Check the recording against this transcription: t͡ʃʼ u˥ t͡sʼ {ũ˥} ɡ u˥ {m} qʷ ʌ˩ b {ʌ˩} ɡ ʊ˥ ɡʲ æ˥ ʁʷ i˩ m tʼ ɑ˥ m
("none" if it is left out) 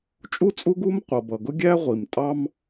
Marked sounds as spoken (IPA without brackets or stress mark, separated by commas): u˥, m, ʌ˩